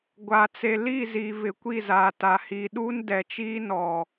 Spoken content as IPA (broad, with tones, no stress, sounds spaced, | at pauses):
ɡʷ a˨ t͡s e˨ l i˦˨ z i˨ v ɪ˨ kʷ i˦˨ z aː˨ t a˨ h iː˨ ɗ uː˦ n d ɛ˨ t͡ʃ iː˦ n ɔ˨